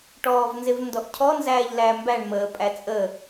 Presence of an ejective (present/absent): present